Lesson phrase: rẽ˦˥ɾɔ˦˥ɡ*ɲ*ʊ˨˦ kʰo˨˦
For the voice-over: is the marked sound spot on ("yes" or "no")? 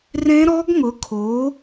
no